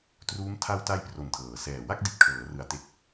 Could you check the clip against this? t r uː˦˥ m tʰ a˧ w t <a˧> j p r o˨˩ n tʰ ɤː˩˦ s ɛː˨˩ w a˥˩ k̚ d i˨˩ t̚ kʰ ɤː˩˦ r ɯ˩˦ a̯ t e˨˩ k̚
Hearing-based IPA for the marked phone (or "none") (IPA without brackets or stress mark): a˧